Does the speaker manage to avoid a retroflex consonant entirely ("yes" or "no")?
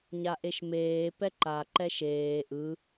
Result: yes